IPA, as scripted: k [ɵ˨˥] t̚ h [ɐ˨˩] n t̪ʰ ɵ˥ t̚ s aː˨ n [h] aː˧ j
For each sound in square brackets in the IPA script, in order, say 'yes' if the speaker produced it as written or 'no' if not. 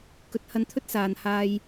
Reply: yes, no, yes

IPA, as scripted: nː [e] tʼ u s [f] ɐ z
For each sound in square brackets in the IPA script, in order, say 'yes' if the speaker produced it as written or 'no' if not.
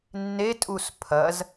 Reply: yes, no

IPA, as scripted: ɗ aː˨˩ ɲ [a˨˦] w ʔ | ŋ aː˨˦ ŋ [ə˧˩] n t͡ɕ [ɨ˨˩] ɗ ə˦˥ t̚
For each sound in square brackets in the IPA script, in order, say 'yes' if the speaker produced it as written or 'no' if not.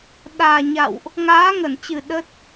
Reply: no, yes, yes

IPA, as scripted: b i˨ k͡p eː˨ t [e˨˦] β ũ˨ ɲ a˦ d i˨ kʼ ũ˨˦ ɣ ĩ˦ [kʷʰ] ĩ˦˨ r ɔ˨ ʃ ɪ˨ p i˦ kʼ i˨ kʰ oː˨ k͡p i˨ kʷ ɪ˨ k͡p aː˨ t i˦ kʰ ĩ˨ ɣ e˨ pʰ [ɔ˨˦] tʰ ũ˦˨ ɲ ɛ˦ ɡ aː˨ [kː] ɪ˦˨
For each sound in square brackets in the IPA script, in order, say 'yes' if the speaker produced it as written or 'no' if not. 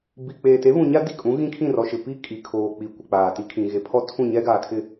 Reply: yes, no, no, no

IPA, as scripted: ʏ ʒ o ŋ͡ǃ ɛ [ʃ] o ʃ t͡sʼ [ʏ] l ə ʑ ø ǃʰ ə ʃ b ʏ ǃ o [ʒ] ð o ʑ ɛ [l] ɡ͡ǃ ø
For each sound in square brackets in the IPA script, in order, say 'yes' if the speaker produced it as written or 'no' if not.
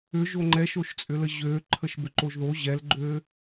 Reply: yes, yes, yes, yes

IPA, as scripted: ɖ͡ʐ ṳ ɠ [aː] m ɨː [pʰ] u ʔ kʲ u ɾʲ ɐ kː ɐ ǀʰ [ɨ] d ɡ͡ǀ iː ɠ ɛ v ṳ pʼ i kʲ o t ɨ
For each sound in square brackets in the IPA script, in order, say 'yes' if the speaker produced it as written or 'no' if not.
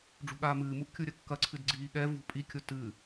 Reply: yes, no, yes

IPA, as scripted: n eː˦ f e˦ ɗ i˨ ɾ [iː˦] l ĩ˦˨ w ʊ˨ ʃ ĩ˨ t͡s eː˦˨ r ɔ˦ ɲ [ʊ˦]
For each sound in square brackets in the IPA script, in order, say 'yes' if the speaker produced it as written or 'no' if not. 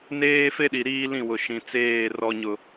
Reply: yes, yes

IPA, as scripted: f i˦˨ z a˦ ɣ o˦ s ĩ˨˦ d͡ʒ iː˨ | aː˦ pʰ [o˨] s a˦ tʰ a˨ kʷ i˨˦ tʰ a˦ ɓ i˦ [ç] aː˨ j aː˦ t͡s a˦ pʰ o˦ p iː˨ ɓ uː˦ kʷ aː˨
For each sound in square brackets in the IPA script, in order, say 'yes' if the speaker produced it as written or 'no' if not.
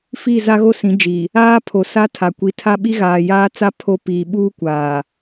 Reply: yes, no

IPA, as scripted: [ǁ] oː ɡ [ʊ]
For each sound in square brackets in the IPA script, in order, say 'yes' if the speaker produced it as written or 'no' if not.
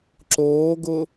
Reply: yes, yes

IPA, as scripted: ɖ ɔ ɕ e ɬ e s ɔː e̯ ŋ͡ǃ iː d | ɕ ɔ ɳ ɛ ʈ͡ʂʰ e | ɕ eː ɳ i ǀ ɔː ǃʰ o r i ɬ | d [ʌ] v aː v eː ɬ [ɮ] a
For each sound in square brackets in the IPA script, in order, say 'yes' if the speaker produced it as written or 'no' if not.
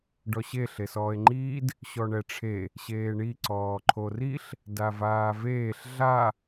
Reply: no, yes

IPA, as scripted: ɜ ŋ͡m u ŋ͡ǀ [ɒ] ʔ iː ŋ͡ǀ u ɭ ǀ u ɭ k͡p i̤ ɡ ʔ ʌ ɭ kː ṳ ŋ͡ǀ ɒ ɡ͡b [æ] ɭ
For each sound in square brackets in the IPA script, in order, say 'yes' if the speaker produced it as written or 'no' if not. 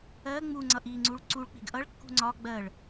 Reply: no, no

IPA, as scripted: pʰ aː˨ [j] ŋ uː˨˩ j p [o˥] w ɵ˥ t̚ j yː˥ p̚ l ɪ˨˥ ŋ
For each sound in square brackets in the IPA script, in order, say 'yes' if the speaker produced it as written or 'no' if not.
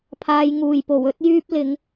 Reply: yes, no

